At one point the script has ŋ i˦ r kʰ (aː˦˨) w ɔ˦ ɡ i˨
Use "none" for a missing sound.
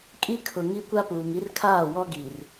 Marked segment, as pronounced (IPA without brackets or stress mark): aː˦˨